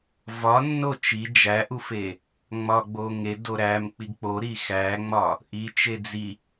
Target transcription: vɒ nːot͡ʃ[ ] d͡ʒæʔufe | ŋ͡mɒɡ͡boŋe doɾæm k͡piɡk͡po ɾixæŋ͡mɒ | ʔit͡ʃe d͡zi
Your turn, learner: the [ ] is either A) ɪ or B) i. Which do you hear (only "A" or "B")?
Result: B